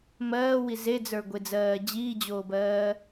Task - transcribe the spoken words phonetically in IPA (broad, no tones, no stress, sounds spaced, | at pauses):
m ɜː w i z e d͡z ə˞ ɡʷ e d͡z ɜː d͡ʑ iː d͡ʑ oː b ɜː